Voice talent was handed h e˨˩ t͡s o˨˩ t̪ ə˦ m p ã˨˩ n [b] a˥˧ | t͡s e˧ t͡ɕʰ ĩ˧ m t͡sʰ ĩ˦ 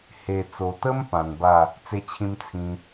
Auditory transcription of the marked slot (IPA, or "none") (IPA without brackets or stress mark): b